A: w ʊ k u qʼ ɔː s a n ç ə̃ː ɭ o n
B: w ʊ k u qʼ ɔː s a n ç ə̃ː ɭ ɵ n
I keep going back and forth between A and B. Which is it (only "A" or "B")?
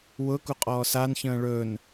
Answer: B